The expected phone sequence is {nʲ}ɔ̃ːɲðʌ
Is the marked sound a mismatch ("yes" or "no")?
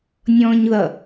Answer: no